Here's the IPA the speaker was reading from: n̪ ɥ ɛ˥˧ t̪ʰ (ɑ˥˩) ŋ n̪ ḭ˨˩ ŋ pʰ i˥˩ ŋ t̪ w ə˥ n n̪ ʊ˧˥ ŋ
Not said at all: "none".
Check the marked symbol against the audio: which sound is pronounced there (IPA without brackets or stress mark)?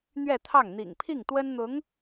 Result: ɑ˥˩